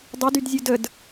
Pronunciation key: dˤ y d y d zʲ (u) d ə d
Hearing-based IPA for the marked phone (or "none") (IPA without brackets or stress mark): u